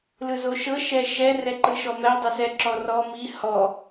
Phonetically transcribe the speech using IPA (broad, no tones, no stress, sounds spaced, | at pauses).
l ɯ z o ʃ ɤ ʃ ɛ ʃ ɛ r ɛ ǃ ɯ ʃ ɔ m ɛ dˤ ø s ɛ ǁ ɔ r ɔ m i h ɔ